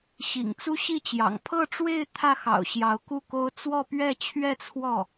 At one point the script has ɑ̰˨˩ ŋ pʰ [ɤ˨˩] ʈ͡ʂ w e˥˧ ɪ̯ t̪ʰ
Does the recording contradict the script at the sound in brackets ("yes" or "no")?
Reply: yes